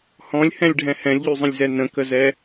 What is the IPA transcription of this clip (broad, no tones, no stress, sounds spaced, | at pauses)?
h ɔ̃ lʲ h ɛ̃ lʲ ɖʱ ɛ̃ h ɛ̃ lʲ ʎ y zˤ ə̃ lʲ z ɛ n ə̃ k ə z ɛ